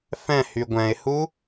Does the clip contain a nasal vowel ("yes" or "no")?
yes